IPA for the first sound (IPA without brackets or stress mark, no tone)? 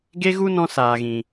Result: ɡ